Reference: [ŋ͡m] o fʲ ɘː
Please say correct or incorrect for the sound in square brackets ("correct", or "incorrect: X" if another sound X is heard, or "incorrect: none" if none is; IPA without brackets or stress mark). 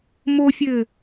incorrect: m